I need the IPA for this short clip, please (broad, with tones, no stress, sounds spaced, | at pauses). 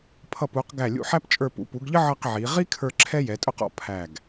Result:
pʰ ʌ˧˩ p u˩˧ q ɡ æ˧˩ lʲ ṵ˧ ħ æ˥ p t͡ʃʼ ə˞˧ p ṵ˩˧ p u˩˧ ɡ ʎ ə˥ ʕ ʌ˥˧ q ʕ i˩˧ ʁ i˥ kʰ ə˞˧ ǁʰ ɛ˥ j ɛ˩˧ tʼ ʊ˥˧ q ɔ̰˩˧ pʰ æ˧˩ ɡ